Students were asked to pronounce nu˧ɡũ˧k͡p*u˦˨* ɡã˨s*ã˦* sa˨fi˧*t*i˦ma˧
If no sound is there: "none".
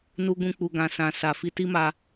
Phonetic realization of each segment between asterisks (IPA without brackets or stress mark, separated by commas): u˨, ã˨, t